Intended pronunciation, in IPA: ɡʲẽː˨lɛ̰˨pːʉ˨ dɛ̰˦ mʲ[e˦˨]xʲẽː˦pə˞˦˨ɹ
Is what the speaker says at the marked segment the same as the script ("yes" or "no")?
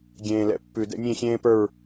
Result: no